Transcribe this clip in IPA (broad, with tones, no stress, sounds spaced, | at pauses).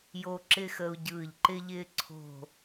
j o˧ ǁ ɪ˧ x ə˧ u̯ ɟ ɯː˧˩ ʎ ǃ ɪ˧ ʎ ɪː˧ ǀʰ o̤˧˩